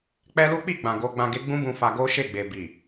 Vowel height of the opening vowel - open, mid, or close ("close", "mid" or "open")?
mid